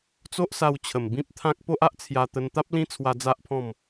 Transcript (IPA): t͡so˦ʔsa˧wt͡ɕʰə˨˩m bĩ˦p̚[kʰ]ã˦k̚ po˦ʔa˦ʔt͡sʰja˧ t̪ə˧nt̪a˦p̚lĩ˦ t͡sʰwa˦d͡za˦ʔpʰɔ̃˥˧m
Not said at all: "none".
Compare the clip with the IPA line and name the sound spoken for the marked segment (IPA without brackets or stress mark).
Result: t̪ʰ